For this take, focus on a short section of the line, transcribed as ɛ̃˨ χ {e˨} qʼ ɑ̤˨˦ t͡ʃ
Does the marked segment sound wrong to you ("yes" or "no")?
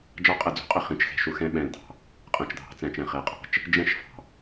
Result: yes